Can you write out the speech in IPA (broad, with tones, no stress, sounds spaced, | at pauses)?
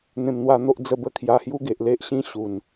n̪ ẽ˧ m n̪ w a˧ n̪ o˦ ʔ d͡z ə˥˧ b ə˦ kʰ j a˧ h j u˦ ɡ e˨ ʔ l e˦ ʔ ɕ ĩ˦ ɕ u˨˩ n